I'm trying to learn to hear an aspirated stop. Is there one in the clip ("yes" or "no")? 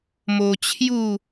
yes